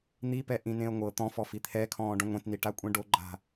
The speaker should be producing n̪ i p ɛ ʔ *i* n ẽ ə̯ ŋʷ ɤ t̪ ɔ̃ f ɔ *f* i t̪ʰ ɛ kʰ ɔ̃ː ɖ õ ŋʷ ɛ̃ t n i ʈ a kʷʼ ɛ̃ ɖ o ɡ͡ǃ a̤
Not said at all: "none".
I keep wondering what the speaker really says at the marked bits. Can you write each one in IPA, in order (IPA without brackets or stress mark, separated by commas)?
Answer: ĩ, f